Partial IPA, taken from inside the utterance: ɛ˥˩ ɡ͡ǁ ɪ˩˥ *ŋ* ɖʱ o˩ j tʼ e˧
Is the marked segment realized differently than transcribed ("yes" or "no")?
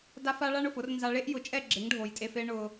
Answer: no